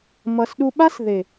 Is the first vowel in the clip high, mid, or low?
mid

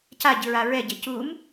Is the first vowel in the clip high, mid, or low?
low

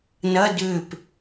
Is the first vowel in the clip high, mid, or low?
low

